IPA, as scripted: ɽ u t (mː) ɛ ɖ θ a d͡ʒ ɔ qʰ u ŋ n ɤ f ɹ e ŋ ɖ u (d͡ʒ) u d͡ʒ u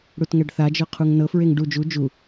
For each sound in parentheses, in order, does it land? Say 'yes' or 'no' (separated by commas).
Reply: no, yes